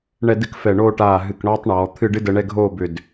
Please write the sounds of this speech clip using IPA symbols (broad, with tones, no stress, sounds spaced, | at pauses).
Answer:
ɳ ɛ˥˧ d ɨ˥ k f ɛ˧˩ ɳ oː˥˧ ʈ aː˧˩ ɦ ɨ˧˩ k ɳ ɔː˥ tˤ ɳ ɔː˩˧ t̪ʰ ɨ˥˧ ɖ ɨ˥ d ə˧ ɳ ɛ˥˧ ɡʱ oː˥˧ b ʏ˧˩ d